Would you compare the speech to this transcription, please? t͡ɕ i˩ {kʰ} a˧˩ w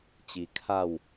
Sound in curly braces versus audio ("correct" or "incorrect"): correct